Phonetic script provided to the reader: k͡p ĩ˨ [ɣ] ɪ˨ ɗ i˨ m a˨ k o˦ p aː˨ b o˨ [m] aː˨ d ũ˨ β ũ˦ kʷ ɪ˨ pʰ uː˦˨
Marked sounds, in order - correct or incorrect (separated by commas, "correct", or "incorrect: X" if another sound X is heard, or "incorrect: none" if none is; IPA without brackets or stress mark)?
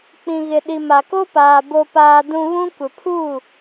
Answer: correct, incorrect: p